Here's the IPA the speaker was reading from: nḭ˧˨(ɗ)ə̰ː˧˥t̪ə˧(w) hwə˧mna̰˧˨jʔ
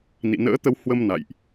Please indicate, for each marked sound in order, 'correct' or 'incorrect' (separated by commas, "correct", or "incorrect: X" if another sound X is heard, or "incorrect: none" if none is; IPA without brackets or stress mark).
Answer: incorrect: n, correct